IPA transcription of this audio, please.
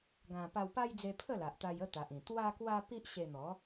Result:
ɡ ã˧ p a˧ w p a˦ j d͡z e˧ pʰ ə˥˧ l a˨ ʔ t̪ a˧ j ə˥˧ t̪ a˨ ʔ ĩ˨˩ t̪ w a˦ k w a˦ p i˦ ʔ ɕ e˧ n̪ ɔ˨˦

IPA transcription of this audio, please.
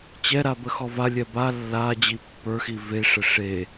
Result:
t͡ɕ ɛ ɾ a b ə x ɔ v a lʲ ɛ b a lː a d͡ʑ i pː ə˞ x i v e ʂ ə ʂ e

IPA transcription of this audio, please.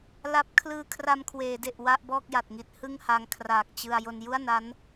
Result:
l a˦˥ p̚ kʰ l ɯː˧ kʰ r a˧ m kʰ w eː˩˦ d e˨˩ ʔ w a˥˩ ʔ b ɔː˥˩ k̚ j a˨˩ t̚ ŋ i˦˥ t̚ h ɯ˥˩ ŋ h a˧ ŋ kʰ r aː˨˩ k̚ t͡ɕ ɯ˧ a̯ j o˧ n j u˥˩ a̯ n a˦˥ n

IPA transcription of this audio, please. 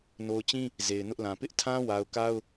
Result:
n o˨ ʊ̯ t͡ɕ ĩ˦ | z e˨ ɪ̯ n ʊ˦ ʔ l ã˨ p ɪ˦ ʔ tʰ ã˦ w a˨ ʊ̯ k a˦ ʊ̯

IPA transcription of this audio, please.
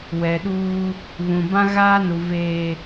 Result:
w ɛ˨ ɗ uː˦ | β ũ˨ b ã˦ ɣ aː˦ n u˨ v eː˨

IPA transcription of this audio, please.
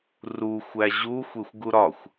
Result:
r u xʷ æ ʑ u xʷ e xʷ ɡ u ɾ ɒ xʷ

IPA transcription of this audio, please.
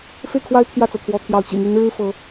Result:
f e˥˩ ɪ̯ kʰ w a˥ ɪ̯ t̪ʰ j ä˥˩ t͡s ɤ˩ t̪ʰ w ɔ˧˥ t̪ʰ j ɑ˧˥ ʊ̯ t͡ɕ ḭ˨˩ m y˧˥ n ɻ ɻ̩˥ f ɤ˧˥

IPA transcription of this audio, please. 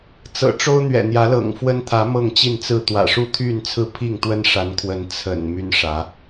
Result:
t͡s ɤ̰˨˩ ʈ͡ʂ o˦ ʊ̯ n̪ ɥ ɛ̰˨˩ n̪ j ä˨˦ l ɤ̰˨˩ ŋ f w ə˦ n t̪ʰ ä˨˦ m ɤ˥˨ ŋ t͡ɕ i˥˨ n t͡s ɹ̩˥˨ t̪ w ä̰˨˩ ʂ u˥˨ t̪ʰ y˥˨ n t͡sʰ ɹ̩˥˨ pʰ i˥˨ ŋ t̪ w ə˦ n ʂ a˨˦ n kʰ w ə˨˦ n t͡sʰ ə̰˨˩ n m y˦ n ʂ ä˨˦

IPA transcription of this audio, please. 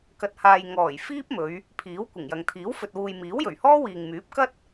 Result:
k ɐ˨ t̚ h aː˨ j ŋ ɔː˨˩ j f iː˥ p̚ m ɵ˨˧ ɥ | pʰ iː˨˥ w kʷ ɪ˨˩ ŋ j ɐ˨ ŋ t̪ʰ iː˨˥ w f ɵ˨ t̚ w uː˨ j m iː˨˥ w j ɵ˨˩ ɥ h ɔː˥ w iː˨ ŋ m yː˨˥ p̚ k ɐ˥ t̚

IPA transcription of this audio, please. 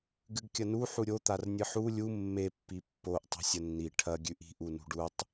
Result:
ɡ ɨ ɡ kʲ ɐ n u ħ u ɾʲ o t̪ a r nʲ ɨ ħ u lʲ u mː e pː i pː o ʔ tˤ e̤ sʲ ɐ nː i ʈʰ ɐ ɡʲ ʉ ʔ i̤ ʔ u n ṳ ɖ u tˤ

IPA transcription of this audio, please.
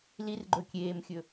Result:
l i r ɡ͡ǃ ɵ kʲ eː m xʲ ɵ

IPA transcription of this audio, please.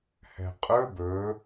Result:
h ɛ̤ qʼ ɵ b ɵ

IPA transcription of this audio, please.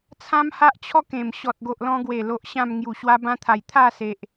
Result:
t͡sʰ ã˦ m h a˦ ʔ t͡ɕʰ ɔ˥˧ k ẽ˨˩ m ɕ ɔ˨ t̚ ɡ o˨ ʔ l ɔ̃˧ ɡ w e˨˩ l o˨ ʔ ɕ ã˥˧ m ŋ j u˨˩ ɕ w a˦ b ã˦ t̪ʰ a˨˩ j t̪ʰ a˥˧ s e˨ ʔ

